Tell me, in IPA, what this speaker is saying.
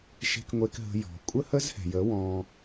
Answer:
ʃ e̤˧ k ŋʷ e˧ k ɦ ə̤˧ j ɔ̤˨ kʷʼ ə˦ h ə˦ z h ɛ̤˨ j ə˨˦ w ɔ̃˧

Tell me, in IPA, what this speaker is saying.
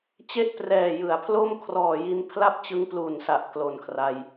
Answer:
t͡ɕ e˥˩ ʔ p r ɛː˨˩ j ɯ˩˦ a̯ pʰ l o˥˩ m kʰ r ɔː˨˩ j i˧ n pʰ l a˥˩ p̚ t͡ɕ ɯ˦˥ ŋ p l u˨˩ n s a˨˩ ʔ k l o˨˩ n kʰ r a˧ j

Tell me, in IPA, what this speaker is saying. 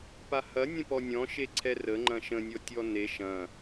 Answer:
p a h ɐ nʲ ə̃ p ɔ nʲ ɔ̃ ʃ e ǀʰ ɛ r ə ŋ͡ǃ ɐ̃ ʃ ə̃ nʲ ɔ tʲ ɔ n e ʃ ɐ̃

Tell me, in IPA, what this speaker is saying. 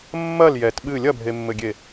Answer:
mː ɐ l j ɛ t ɓ ɨ lʲ ɐ bʱ e mː ɘ ɡʲ e

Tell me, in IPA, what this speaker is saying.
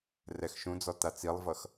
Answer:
r ɛ x ʃ ũ d͡z ɔ t a t͡s i lˠ v ʌ x

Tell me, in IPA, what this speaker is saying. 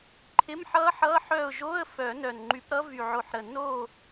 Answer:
ǃʰ ɪ˧˥˧ m ħ ʌ˦˥ ħ ʌ˧˥˧ ħ œ˦˨ ʊ̯ ʒ o˧˥˧ ə̯ f œ˨˩˦ n œ˨˩ n ŋ͡ǃ y˨˦ p ɾ ʌ˦˥ v y˨˩ ʕ o˨˩ ħ ɾ ə˨˩ n o˦˨

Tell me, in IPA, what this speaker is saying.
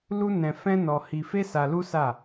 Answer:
l u˦ n ɛ̃˧ f ɛ̃˦ n ɔ˧ h i˧ f e˦ s a˧ l u˦ s a˦˨

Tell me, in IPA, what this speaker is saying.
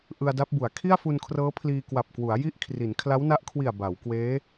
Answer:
ʔ ɯ˧ a̯ d a˦˥ p̚ b u˩˦ a̯ kʰ i˥˩ a̯ f u˧ n kʰ r ɤː˦˥ pʰ l iː˧ k w a˨˩ p̚ k w u˩˦ a̯ j i˥˩ ʔ kʰ r i˩˦ n kʰ l a˦˥ w n a˦˥ ʔ kʰ w i˨˩ a̯ b a˩˦ w k w eː˦˥

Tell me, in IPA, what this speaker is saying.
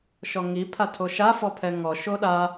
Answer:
ʃ ɔ ŋ i pʰ a tʰ o ʃ a f ɔ pʰ ɛ ŋ ɔ ʃ o ɗ a

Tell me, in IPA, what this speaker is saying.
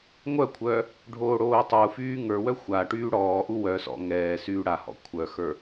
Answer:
ŋʷ œ kʷʰ œ | ɖʱ oː ɽ oː tˤ u f yː ŋ ə˞ w œ xʷ a ʈ yː ɽ ɔː ʔ u w œ s ɔ̰ ŋ ɛː s yː ɽ a h ɔ̰ kʷʰ œ x ə˞

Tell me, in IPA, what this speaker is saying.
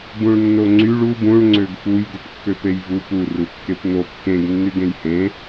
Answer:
b ũ ɭ nː o ŋ͡ǀ y ɭ u b ũ ɭ ŋ͡ǀ ø ɡ f u j ɡ u p kː ø p e j v u p u r u kː e p n o kː ẽ ɡ nː y ɡ ẽ j h ẽ

